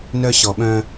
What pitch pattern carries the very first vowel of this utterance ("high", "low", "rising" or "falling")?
high